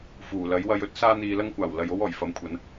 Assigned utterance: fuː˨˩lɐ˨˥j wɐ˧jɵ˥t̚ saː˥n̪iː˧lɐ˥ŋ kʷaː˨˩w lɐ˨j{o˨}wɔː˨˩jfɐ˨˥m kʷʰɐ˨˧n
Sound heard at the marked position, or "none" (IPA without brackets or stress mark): o˥